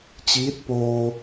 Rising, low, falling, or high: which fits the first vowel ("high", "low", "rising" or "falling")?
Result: rising